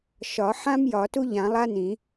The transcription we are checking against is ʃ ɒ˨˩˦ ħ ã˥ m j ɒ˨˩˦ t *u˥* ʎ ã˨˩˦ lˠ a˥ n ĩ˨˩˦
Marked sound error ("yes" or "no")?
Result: no